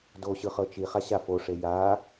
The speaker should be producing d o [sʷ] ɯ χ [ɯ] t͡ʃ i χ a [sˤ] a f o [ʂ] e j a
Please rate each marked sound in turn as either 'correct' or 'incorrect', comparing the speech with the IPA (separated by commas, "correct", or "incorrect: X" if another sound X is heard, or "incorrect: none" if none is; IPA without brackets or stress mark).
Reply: incorrect: ɕ, incorrect: ɤ, incorrect: ɕ, correct